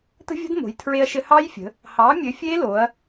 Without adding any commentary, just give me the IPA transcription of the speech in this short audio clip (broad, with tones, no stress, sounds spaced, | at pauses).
t ə̤˦˥ vʲ ə̤˦˥ d m o̤˩˧ j tʰ ɹ e˧ ɐ̯ ʃ ɘ˧ h ɑ˦˥ j fʲ ə̤˩˧ | h ɑ˩˥ mʲ ɘ˩˥ fʲ e˦˥ l o˩˧ ɐ̯